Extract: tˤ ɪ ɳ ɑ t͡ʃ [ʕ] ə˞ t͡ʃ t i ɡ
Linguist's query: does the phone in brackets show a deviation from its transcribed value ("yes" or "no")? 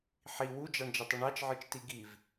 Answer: no